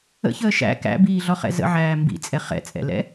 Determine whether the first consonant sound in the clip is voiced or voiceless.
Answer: voiceless